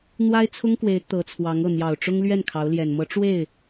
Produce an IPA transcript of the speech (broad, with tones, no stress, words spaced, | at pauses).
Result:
n̪wa˥ɪ̯t͡sʰʊ˥ŋkwe˧˥ɪ̯ t̪ɤ˧˥t͡sʰwɑ˧˥ŋ ɤ˥˩n̪jɑ˨˩ʊ̯ʈ͡ʂʊ˥ŋlɥɛ˥˩n kʰɑ˧˥ʊ̯ljɛ˨˩n mɤ˧˥ʈ͡ʂwe˥˩ɪ̯